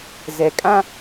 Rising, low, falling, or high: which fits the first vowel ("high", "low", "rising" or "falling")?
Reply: low